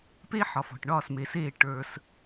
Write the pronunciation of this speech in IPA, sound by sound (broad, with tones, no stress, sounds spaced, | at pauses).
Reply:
p e˦ ħ ɒ˨ f ɔ̤˨ ʈ ɳ ɒː˦˨ s m e˨ s eː˦˨ ʈ ə˞˧ s